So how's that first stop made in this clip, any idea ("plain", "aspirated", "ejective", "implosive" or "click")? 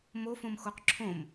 plain